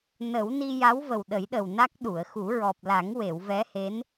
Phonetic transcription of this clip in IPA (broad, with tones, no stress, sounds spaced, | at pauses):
n ə˨˩˦ w n i˧ j a˧˥ w v ə˨˩ w ɗ ə˨˩˦ j ɗ ə˨˩ w n a˦˥ k̚ ɗ u˨˩˨ ə̯ x u˨˩˦ ɹ ɔ˨˩ p̚ l a˨˩˦ ŋ w e˨˩˨ w v ɛ˧˥ h e˧˥ n